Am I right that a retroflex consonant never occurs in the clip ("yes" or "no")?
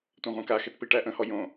no